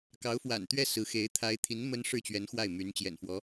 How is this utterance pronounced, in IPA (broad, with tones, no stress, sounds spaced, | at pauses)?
k ɑ˧˥ ʊ̯ f w a̰˨˩ n t̪ ɥ ɛ˥˩ s ɹ̩˧˥ x e˧˥ ɪ̯ t̪ʰ a˧˥ ɪ̯ t̪ʰ i˧˥ n m ə˥ n ʂ ɻ̩˥˩ t͡ɕ ɥ ɛ˧˥ n x w a˥˩ ɪ̯ m y˧˥ n t͡ɕ j ɛ̰˨˩ n f w ɔ˧˥